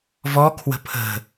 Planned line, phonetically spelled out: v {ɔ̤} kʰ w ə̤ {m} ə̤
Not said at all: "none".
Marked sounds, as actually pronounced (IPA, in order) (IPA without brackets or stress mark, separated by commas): ɔ, pʰ